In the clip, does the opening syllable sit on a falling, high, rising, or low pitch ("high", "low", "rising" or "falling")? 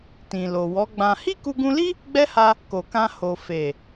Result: low